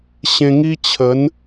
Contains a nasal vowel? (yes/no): yes